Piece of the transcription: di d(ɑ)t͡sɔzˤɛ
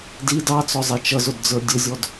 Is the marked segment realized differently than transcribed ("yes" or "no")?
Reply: no